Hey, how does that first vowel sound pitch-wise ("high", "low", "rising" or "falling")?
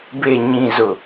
low